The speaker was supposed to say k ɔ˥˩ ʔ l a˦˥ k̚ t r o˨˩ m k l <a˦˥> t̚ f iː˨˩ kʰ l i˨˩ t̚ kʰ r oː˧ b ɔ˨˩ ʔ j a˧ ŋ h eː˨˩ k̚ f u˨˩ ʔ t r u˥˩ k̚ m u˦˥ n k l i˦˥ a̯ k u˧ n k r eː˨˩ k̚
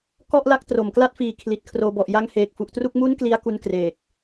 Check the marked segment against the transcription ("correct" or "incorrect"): correct